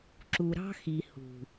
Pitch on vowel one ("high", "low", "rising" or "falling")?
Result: low